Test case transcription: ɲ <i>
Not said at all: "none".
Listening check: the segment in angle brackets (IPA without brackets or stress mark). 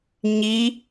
i